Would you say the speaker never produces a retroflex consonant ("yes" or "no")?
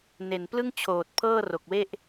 yes